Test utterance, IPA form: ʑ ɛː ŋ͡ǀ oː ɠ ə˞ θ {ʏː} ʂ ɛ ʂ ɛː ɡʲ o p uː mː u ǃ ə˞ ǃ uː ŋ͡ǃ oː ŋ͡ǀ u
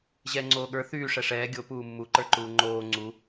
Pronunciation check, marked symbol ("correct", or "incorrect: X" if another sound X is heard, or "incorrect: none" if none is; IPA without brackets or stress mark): incorrect: yː